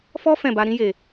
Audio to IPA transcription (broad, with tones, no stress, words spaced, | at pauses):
fɔ˦ fɛ̃˦˨ba˧ ɾĩ˧je˨